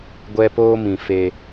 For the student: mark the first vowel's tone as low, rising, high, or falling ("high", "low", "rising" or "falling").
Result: high